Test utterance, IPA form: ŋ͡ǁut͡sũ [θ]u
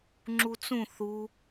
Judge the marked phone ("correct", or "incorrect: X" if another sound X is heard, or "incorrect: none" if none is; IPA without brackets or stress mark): correct